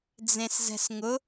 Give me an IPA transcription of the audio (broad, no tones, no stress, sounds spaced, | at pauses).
d͡z ẽ s z ɛ̤ s ŋ ʊ